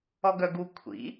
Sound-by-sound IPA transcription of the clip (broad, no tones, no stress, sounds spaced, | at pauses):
ɔ ɡ œ ɡ u kʷʰ ḭ